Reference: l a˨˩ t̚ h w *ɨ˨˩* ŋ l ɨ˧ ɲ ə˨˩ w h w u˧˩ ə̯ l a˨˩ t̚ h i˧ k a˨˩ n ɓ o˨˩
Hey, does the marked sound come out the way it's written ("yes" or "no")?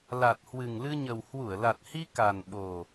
yes